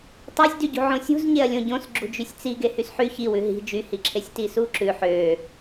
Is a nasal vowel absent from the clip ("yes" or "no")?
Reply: no